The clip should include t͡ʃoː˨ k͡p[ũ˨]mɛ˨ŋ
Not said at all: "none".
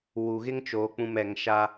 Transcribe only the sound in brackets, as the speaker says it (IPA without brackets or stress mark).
ũ˨